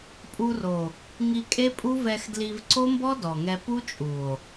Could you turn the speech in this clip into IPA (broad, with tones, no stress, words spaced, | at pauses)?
pʼu˧ro˨ | ŋi˧kʼe˦pʼu˦ vɛ˧xdli˧v ǀo˦mbɔ˦ dɔ˨ŋɛ˧ pu˦t͡ʃʼu˨o̯